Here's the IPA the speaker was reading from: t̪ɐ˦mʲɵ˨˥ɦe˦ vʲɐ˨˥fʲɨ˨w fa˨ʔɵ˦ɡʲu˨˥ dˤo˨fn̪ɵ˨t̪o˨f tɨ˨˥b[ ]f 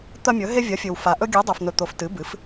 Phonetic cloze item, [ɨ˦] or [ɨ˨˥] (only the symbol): ɨ˨˥